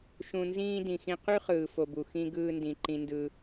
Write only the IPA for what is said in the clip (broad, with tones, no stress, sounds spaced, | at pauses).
ʃ ũ˧ n z ĩː˦ d ĩ˨ x ĩ˧ q y˦ χ ɯː˨ f o˨ b u˨ x ĩ˧ ɡ ɯː˧ n d ĩ˨ ǃ ĩ˧ n d ɯ˧